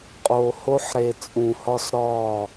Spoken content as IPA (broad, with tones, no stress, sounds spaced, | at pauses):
qʼ oː˨ h o˦ ħ ɾ e˨ t͡sʼ ũ˨ h ɒ˦ s ɾ ɒː˦˨